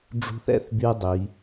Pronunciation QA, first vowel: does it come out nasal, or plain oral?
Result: oral